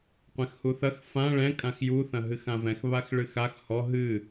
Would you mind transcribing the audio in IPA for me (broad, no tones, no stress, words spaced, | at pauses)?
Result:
qʷɛ̃xhuθɐx fã ɭɛ̃ kʼãxju θɐ̃ɦɨxãvɛ̃x βaxɭɨxax hɔ ɦɨ